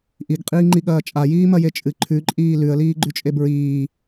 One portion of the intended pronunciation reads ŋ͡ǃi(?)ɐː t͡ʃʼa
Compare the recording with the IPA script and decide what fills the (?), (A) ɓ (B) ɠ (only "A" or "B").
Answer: B